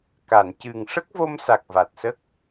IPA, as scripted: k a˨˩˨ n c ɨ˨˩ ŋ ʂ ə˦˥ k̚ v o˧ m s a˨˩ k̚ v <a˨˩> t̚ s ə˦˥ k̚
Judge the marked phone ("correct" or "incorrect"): correct